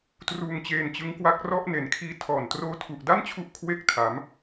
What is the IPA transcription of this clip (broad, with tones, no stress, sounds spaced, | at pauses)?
t r uː˧ ŋ t͡ɕ eː˧ n t͡ɕ ɯ˦˥ ŋ k w a˦˥ k̚ r ɔ˥˩ ʔ n e˨˩ n kʰ iː˧ tʰ ɔː˨˩ n t r oː˦˥ tʰ u˨˩ ʔ d a˥˩ n t͡ɕʰ u˦˥ ʔ kʰ w e˦˥ k̚ tʰ a˩˦ m